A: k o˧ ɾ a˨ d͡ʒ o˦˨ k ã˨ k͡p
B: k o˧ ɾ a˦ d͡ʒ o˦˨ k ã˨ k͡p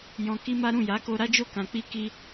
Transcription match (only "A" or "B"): B